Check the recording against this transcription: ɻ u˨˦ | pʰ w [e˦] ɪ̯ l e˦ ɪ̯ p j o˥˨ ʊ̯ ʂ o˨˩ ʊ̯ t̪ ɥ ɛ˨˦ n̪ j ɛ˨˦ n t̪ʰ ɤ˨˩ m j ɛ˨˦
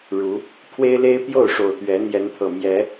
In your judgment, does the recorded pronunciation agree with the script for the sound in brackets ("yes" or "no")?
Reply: yes